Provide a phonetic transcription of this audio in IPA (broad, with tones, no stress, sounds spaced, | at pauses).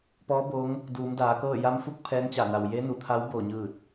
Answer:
p ɔː˧˥ b o˧˥ ŋ | d uː˩˧ m d aː˩˧ k ɤː˥˨ j a˧˥ m f u˧˥ k̚ pʰ ɛː˧˥ n t͡ɕ a˧˩ n a˩ w j e˧˥ n u˩ t̪ʰ a˧˥ w b oː˧˩ ɲ ɯː˧˩ t̚